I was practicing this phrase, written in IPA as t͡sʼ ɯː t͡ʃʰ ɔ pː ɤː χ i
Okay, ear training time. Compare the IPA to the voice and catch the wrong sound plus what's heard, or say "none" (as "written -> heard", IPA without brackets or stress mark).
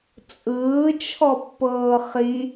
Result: none